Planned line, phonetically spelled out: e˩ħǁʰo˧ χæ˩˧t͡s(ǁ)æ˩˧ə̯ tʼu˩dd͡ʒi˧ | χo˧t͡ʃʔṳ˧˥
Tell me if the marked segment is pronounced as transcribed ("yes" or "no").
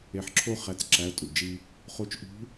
yes